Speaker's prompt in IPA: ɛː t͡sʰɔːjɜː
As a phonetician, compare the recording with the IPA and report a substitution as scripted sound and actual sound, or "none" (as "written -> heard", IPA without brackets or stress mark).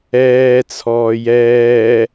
ɜː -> ɛː